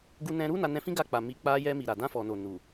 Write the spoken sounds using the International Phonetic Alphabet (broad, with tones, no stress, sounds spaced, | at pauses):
ɡ u˧ n ɛ̃˧ ɾ u˦ n a˧ n ɛ̃˧ f ĩ˦ ɡ a˧ k͡p a˨ m i˨ k͡p a˧ j ɛ˧ m i˨ ɾ a˨ d ã˧ f ɔ˨ n o˨ n u˨